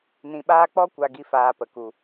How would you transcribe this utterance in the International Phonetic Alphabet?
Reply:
nĩ˧ɓaː˦ k͡pɔ˦ kʷa˦ɡi˦faː˧pə˨ ku˨

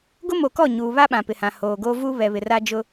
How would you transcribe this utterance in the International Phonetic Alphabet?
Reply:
ɡʊ˦mo˨kɔ˦˨ ɲuː˨βa˦ ɓã˨pɪ˨hã˨ hoː˨ɡo˦ vu˦ βɛ˨βɪ˨ ra˦d͡ʒʊ˦

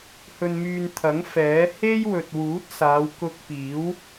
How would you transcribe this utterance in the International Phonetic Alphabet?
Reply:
hɵ˧nmyː˧n t̪ʰɐ˨˥ŋ fɛː˨˥ he˥jwɵ˨t̚wuː˨˥t̚saː˨˧w kʊ˧k̚piː˨˥w

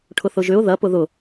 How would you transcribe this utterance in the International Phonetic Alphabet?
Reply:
ʈʰʊθʊʒʏʊ̯ ðɐ pʊðʊ

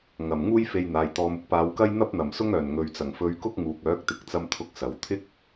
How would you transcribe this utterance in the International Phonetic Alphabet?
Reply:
ŋɐ˨˩m ŋuː˥jfe˧jn̪aː˨j t̪ɔː˨mʊ˧k̚paː˨˧wkɐ˥j n̪ɐ˥p̚n̪ɐ˨˩msʊ˥ŋœː˨˩n ŋɵ˨ɥt͡sɐ˨˩ŋfɵ˧ɥkʊ˥k̚ ŋuː˨k̚œː˨˥k̚t̪ɪ˨˥k̚t͡sɐ˧m t̪ʰʊ˥k̚sɐ˨˥w t̪ʰɪ˥k̚

